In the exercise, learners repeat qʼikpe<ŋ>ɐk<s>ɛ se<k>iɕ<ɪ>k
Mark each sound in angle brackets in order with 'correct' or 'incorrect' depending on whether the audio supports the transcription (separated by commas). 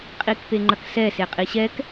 incorrect, correct, incorrect, incorrect